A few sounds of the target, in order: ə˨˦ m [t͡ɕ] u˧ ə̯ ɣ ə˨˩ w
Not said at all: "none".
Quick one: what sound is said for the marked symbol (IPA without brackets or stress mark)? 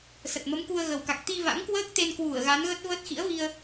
k